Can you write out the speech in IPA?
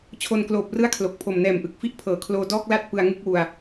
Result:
t͡ɕʰ o˧ n k l oː˨˩ p̚ r ɯ˥˩ a̯ kʰ l o˨˩ k̚ pʰ o˨˩ m n ɛː˨˩ m ʔ ɯ˨˩ k̚ f i˦˥ ʔ pʰ ɤː˩˦ kʰ l oː˧ d ɔː˥˩ k̚ l a˥˩ t̚ p ɯ˧ a̯ ŋ ɯ˥˩ k̚ w u˧ a̯

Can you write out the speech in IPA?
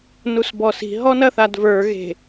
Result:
n u s b ɔ s i̤ ɦ ɔ n ɐ θ a d v ə˞ ɣ e̤

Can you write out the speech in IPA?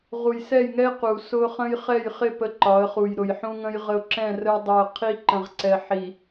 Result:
ʁ u˨ j s ɛ˦˨ j ŋ ɛ˦ ɪ̯ q u˨ s ʊ˦ χ ə̃˦ j χ ɛ˦˨ j χ ɪ˦˨ p ə˦ ǃ ɒ˨˦ ə̯ χ u˨ j ɾ ʊ˨ j ħ ũ˦ ŋ ə̃˦ j ʁ ə˦ ʊ̯ ǁ ɛ̃˦˨ r ə˦ ɪ̯ dˤ u˨ ə̯ qʰ i˦ ǃ ə̃˨ ʁ ǀ ɛ˨ ħ i˨

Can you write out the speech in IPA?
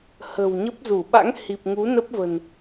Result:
h ə̤˨˩ w ɲ ə˦˥ p̚ z u˧˩ ɓ a̰˧˥ ŋ h i˨˩ p̚ ŋ u˨˦ n ə˦˥ p̚ v ə̤˨˩ n

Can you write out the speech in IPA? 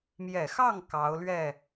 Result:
m j ɛ˨˩ x ɑ˥˩ ŋ k ɑ˧˥ ʊ̯ l ɥ ɛ˥˩

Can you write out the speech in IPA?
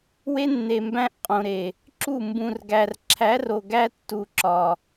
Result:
w e˦ nː e˨ m b æ̃˦ ʔ qʼ õ˨ ɾ e˨ | ǁ u˦˨ m b ũ˨ r ɡ æ˨ r ǁʰ æ˨˦ r o˨ ɡ æ˦ tː u˨ ǁ ɒ˨

